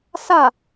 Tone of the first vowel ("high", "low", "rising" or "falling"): falling